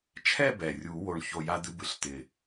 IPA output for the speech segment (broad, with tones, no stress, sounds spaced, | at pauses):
t͡ʃʰ ɛ˥˧ b ɛ˨˩ rʲ u˨˩˦ w o˨˩ ɳ ç o˨˩ j a˧ d̪ ɨ˧ b ɨ˩˥ ɬ t̪ ɪ˨˩